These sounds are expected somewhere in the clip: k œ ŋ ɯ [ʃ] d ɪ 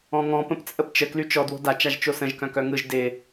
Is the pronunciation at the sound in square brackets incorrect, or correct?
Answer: incorrect